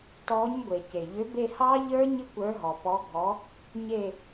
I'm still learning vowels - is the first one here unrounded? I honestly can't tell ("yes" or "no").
no